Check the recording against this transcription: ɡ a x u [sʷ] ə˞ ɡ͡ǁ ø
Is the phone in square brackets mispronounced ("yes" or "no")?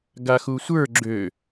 no